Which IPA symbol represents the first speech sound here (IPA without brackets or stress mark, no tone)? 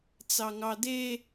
t͡s